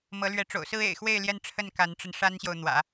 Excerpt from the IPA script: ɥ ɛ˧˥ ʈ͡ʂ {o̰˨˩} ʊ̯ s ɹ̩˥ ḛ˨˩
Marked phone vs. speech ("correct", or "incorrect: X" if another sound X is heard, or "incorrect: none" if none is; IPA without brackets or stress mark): correct